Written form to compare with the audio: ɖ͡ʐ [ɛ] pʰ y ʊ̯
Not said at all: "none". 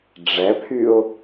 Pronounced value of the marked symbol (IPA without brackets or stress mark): ɛ